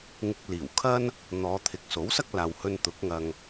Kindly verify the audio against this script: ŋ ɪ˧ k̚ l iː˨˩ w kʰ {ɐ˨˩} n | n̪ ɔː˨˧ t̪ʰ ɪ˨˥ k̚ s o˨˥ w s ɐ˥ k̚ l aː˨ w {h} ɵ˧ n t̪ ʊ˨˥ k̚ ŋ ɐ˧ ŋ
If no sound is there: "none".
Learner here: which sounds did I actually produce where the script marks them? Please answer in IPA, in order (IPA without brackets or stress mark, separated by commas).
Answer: ɐ˥, h